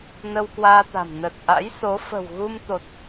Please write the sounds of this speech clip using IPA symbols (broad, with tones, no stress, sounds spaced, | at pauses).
n ə˧ w k w aː˧ t̪ a̤˨˩ m n ə˨˩ t̚ ʔ a̰˧˥ j s o˨˦ f ə̤˨˩ w ɣ u˧ m t̪ o˨˩ t̚